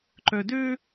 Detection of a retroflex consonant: absent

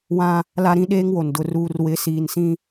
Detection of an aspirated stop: absent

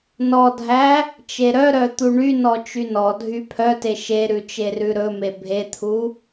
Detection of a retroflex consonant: present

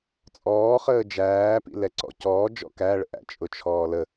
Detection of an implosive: absent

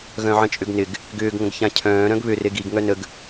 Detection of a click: absent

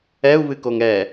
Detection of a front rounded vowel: absent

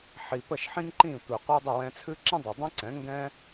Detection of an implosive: absent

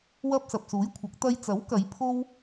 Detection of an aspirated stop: present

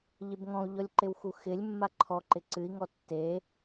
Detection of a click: present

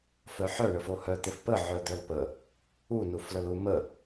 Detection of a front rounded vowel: present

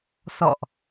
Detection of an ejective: absent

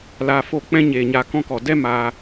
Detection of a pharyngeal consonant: absent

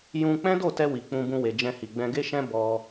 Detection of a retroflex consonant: absent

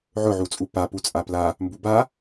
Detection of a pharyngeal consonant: present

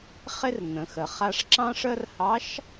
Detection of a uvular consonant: present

